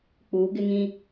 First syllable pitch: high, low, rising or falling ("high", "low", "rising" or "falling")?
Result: rising